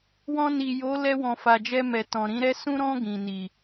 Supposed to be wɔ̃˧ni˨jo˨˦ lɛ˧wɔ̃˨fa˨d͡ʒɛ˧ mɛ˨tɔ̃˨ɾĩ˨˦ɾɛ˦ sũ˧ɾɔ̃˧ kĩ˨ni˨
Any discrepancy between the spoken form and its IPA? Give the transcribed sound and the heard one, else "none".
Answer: k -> ɡ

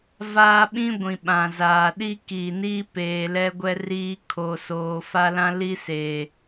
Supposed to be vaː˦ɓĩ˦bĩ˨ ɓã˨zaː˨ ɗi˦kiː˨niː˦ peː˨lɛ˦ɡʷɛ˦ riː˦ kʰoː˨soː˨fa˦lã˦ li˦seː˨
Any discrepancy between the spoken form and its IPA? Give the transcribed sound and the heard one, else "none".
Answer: b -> ɡʷ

